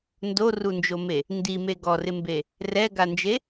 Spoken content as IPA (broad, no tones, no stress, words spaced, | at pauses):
ndorund͡ʒome | ndime ɡɔrɪmbe | rɛɡand͡ʒe